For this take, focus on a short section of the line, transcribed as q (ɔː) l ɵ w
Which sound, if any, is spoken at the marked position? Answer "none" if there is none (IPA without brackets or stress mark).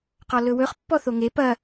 ɔ